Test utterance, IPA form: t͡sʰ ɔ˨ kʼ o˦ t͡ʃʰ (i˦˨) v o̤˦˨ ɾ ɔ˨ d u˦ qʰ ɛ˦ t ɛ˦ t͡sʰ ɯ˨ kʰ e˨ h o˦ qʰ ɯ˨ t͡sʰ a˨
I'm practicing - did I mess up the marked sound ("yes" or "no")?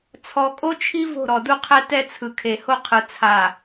yes